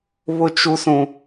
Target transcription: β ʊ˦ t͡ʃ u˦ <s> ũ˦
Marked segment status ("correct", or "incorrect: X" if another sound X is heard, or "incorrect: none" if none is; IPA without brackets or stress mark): correct